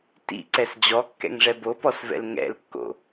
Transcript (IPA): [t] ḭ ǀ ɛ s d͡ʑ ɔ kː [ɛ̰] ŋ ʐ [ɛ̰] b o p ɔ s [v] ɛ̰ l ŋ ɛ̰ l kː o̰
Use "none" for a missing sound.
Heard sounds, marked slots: t, ɛ̰, ɛ, v

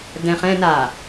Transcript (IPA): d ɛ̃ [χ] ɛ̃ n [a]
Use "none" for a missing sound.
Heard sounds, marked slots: χ, a

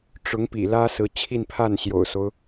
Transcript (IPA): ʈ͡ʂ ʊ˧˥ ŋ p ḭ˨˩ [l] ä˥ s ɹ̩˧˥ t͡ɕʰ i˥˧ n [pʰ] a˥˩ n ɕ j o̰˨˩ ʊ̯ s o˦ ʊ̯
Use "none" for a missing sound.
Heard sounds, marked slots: l, pʰ

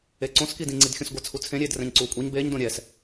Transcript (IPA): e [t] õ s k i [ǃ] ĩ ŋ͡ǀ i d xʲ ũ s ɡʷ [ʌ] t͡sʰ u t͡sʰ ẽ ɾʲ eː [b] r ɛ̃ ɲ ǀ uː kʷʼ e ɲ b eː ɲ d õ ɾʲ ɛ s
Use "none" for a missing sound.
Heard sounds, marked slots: ǀ, d, ʌ, d

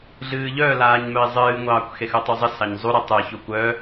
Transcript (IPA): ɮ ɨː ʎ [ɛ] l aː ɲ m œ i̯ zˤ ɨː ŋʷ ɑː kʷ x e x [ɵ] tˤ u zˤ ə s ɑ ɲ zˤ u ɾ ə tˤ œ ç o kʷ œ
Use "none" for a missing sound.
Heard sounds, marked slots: œ, ɵ

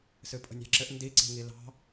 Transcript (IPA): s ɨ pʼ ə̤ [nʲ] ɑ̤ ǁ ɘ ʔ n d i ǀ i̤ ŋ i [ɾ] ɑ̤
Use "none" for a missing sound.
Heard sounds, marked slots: nʲ, l

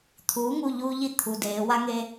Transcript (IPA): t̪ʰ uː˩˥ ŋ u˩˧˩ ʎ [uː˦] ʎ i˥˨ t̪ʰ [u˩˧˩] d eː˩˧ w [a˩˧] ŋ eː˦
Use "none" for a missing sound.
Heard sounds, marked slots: uː˦, u˩˧˩, a˦

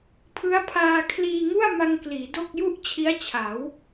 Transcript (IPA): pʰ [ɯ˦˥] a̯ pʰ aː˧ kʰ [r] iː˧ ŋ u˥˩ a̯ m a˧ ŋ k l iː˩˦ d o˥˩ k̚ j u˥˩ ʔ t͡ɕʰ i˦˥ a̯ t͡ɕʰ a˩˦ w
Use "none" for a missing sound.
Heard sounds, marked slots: ɯ˦˥, l

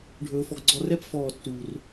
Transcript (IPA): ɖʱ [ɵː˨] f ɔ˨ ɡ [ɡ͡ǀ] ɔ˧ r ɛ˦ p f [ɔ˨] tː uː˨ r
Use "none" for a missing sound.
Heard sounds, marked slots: ɵː˨, ɡ͡ǀ, ɔː˨

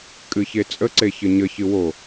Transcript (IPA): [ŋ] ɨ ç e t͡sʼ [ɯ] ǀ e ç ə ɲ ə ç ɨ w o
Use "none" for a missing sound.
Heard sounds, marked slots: kʼ, ə

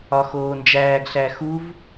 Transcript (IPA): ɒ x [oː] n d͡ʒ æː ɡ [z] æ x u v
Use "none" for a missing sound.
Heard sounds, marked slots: oː, ɬ

